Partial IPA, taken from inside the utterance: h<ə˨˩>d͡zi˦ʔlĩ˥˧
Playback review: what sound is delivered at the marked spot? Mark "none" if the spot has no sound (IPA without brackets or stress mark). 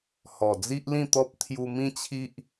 ɔ˨˩